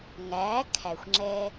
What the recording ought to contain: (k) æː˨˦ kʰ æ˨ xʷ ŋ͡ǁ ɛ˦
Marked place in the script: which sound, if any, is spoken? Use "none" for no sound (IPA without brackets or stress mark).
ŋ